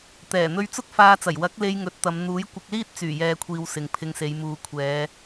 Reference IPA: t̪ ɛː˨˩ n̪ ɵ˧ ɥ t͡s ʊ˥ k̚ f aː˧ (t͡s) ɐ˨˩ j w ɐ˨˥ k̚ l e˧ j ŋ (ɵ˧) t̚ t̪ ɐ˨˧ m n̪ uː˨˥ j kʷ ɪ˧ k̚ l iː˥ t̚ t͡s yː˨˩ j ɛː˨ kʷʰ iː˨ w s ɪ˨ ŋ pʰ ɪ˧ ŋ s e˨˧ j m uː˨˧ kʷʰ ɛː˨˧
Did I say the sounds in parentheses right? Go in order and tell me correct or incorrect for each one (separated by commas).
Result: correct, correct